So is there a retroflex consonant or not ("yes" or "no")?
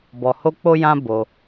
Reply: no